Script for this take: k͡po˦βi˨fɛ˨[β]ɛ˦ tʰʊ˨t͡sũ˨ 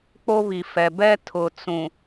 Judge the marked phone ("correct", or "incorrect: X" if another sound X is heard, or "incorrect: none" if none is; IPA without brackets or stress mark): incorrect: b